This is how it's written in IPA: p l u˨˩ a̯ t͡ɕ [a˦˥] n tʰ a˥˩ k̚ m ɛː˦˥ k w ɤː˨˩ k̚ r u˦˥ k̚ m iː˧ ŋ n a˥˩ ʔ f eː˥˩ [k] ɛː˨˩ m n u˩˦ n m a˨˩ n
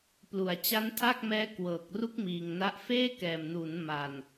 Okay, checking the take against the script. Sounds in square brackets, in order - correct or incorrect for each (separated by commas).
correct, correct